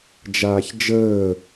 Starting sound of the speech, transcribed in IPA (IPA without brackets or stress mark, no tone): d͡ʒ